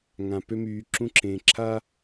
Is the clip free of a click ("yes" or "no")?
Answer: no